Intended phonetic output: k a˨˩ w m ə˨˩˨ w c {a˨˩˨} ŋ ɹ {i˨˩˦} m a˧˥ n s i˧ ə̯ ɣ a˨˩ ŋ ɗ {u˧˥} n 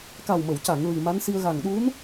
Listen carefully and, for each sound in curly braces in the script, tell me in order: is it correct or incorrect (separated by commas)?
correct, incorrect, correct